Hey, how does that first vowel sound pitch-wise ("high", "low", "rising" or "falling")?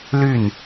falling